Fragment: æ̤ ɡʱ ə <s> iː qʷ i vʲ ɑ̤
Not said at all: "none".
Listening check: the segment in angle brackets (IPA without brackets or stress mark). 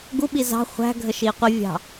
ʃ